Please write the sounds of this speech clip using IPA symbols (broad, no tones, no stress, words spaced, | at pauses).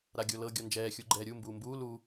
ɾaɡʲolɤ ɡʲɔnd͡ʒɛː xʲuɡ͡ǃɛːɾʲu mbuːmbuː lu